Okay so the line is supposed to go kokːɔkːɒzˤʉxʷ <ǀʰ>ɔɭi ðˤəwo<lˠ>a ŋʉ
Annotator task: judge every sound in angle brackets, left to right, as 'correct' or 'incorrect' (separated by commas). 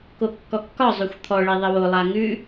incorrect, correct